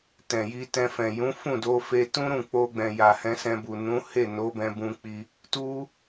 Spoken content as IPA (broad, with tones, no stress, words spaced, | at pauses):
tɛ̃˨ji˧tɛ̃˧fɛ̃˨ jũ˨˦fũ˦˨do˧fe˧ tũ˦ɾũ˦˨k͡po˧ɡ͡bɛ̃˨ ja˨hɛ̃˧sɛ̃˧bu˨ nũ˨˦he˦˨no˨˦bɛ̃˧ bũ˧k͡pi˧ | tu˦